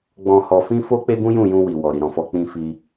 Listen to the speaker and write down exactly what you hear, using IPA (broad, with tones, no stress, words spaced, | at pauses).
ɡ͡bɔ̃˨hɔ˨fĩ˧ fo˦k͡pe˦ɡũ˦jũ˦˨ jũ˧wi˨wɔ˨ ɾi˨ɾɔ̃˨fɔ˧ k͡pĩ˧fi˧